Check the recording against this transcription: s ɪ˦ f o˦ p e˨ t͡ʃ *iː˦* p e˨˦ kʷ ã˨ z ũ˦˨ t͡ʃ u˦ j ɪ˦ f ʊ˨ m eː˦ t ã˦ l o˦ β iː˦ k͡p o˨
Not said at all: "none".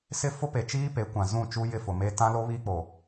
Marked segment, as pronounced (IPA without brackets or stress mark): iː˦